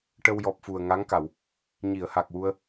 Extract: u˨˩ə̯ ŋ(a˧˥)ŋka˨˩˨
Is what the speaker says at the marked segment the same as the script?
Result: yes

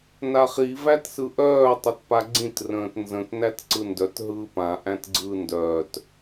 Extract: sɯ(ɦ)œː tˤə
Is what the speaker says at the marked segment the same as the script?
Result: no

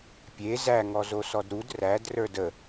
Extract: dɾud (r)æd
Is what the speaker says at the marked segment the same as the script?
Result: yes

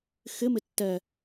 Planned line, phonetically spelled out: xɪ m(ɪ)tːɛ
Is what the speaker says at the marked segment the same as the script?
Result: yes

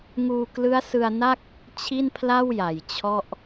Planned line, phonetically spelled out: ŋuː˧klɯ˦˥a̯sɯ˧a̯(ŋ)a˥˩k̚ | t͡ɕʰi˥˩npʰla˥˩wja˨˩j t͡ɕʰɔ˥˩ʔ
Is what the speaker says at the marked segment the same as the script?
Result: no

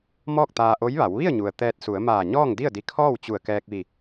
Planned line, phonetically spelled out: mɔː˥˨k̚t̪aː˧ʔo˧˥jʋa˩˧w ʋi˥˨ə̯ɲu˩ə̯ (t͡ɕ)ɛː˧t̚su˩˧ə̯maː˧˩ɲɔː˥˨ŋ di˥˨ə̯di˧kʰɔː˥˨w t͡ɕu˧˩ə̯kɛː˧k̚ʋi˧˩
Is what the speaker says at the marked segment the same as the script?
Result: no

